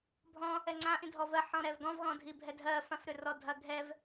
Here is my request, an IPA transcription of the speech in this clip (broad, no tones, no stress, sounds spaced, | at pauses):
bʱ ɔ̃ | ɛ ŋ͡ǀ ã ʔ ĩ dʱ ɔ v ɜ ħ ɔ̃ ɾ ɛ v ɡ ɔ̃ v ɣ ɔ̃ dʱ i bʱ ɛ dʱ ɜ f ã f ɾ ʏ r ɔ dʱ ɐ ɡʱ ɛ v